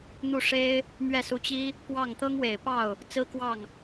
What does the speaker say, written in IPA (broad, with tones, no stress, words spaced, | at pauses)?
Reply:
n̪u˥˩ʂe˥ɪ̯ | mɥɛ˥˩su˧˥t͡ɕi˥ | pwɑ˥˩ŋ t̪ɤ˥ŋwe˨˩ɪ̯pɑ˥˩ʊ̯ | t͡sɹ̩˥kwɑ˥˩ŋ